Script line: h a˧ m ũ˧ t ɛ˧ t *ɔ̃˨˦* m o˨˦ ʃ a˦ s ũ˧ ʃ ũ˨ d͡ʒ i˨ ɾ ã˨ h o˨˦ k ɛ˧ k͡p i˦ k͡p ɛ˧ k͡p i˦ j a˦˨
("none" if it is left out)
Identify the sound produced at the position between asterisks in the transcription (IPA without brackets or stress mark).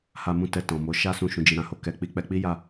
ɔ̃˨